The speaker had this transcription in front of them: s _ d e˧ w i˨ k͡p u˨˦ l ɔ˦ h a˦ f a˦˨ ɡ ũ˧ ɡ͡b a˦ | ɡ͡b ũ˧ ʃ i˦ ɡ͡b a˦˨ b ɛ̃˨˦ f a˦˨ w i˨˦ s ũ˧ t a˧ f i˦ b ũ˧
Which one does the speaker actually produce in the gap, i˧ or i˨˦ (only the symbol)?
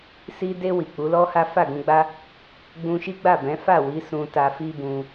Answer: i˧